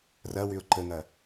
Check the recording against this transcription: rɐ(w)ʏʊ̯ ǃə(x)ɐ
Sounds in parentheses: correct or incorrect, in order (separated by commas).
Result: correct, incorrect